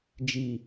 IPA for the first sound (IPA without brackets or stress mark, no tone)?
d͡ʒ